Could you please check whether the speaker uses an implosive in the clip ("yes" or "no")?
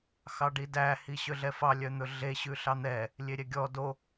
no